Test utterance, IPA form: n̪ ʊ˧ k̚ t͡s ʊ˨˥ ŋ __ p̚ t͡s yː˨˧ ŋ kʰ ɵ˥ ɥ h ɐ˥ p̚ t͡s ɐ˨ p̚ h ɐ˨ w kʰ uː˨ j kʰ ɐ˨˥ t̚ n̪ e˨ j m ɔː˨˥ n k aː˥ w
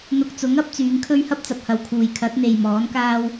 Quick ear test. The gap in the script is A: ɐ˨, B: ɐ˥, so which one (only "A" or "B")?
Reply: B